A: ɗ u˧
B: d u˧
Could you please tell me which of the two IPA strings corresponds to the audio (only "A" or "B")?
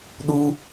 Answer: A